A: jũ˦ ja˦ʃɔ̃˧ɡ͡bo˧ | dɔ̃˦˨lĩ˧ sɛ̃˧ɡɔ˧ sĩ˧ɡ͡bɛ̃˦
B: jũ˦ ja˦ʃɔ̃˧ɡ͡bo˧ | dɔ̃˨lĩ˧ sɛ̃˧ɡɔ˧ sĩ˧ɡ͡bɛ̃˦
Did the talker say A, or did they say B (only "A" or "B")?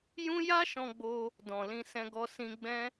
B